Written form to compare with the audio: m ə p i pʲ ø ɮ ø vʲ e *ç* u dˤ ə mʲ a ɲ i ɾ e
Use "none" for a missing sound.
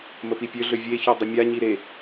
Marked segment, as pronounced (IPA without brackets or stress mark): ç